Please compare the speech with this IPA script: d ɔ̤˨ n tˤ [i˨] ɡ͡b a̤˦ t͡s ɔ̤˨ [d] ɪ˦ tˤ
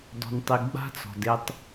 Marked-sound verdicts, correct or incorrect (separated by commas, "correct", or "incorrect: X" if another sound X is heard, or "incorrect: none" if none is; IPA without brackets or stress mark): correct, correct